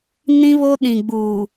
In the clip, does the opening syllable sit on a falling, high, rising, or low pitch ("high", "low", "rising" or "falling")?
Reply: high